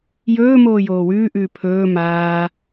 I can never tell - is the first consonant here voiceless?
no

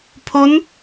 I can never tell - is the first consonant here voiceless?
yes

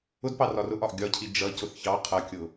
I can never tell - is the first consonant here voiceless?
no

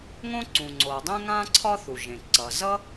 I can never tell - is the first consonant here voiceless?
no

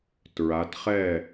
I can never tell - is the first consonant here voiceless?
yes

